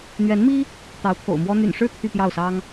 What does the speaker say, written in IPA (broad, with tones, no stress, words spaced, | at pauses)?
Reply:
n̪ɥɛ˧˥nmi˥ | t̪ɑ˧˥ʊ̯t̪ʰo̰˨˩ʊ̯mwɔ˥ n̪y̰˨˩nʂɻ̩˥˧ t̪ʰy˥˧pjɑ˥˩ʊ̯sɑ˥ŋ